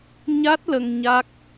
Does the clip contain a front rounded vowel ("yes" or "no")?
no